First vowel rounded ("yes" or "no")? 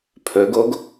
yes